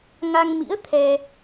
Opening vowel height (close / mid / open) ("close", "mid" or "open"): open